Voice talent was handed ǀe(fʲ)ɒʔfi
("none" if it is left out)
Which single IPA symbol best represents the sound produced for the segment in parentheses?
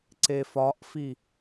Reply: f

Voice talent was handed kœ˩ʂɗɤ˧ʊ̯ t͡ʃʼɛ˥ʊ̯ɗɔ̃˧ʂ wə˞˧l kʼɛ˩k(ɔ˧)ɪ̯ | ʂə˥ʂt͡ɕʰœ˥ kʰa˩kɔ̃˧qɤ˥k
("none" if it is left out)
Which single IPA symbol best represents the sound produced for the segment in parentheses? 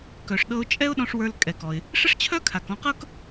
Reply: ɔ˩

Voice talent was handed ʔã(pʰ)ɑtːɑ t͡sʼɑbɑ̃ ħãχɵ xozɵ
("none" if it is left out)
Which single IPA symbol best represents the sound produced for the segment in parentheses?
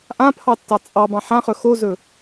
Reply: pʰ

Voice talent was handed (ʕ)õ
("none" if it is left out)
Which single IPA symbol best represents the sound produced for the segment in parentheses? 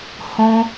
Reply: h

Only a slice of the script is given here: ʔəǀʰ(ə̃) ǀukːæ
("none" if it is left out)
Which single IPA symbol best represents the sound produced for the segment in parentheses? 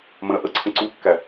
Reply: ə̃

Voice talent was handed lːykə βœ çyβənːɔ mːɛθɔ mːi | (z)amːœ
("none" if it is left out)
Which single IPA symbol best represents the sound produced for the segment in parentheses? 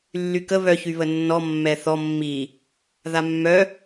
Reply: ð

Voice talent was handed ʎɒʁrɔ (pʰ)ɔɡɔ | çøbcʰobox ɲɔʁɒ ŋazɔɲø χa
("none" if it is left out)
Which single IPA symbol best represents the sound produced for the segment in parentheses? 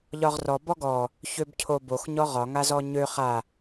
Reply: b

